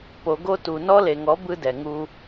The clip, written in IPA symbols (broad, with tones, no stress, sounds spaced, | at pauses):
p o˨ ɡ o˦ t u˨ n ɔ˦ l e˨ ŋ ɔ˨˦ b ɯ˦ d ɛ˨ ŋ u˦